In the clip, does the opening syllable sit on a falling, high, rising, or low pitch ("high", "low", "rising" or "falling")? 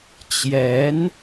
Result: rising